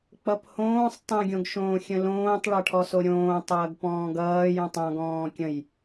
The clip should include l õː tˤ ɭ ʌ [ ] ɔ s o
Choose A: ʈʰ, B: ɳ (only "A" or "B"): A